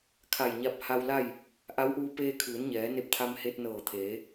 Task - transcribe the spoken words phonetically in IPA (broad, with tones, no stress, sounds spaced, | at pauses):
kʰ a˧˩ j ɲ a˧ p̚ h a˧ w l a˥˨ j | ʔ a˧˥ w ʔ uː˧ p eː˧ kʰ ɯː˩˧ n ɲ ɛː˩˧ n e˧˥ p̚ t̪ʰ a˧ m h e˧ t̚ n ɤː˧˩ t̪ʰ eː˩˧